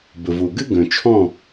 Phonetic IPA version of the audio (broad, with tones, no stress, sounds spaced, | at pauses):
b ə˨ v o˨ ɡ ɘ˦ ɡ œ̃˨ t͡ʃʰ ɔ̃˦˨